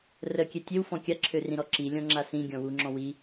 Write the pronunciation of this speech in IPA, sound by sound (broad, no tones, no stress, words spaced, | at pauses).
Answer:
rəkʲɛ tʲewfɔ̃ kʲaǁʰørĩɾɔ ǁilʲɔ̃ŋ͡ǁa sĩɡʲɔ̃ wuŋ͡ǁɔ̃ wi